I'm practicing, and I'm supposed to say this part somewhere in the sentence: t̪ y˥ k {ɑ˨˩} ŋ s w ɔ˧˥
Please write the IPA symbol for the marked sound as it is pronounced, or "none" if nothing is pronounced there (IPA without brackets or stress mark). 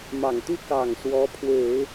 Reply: ɑ˨˩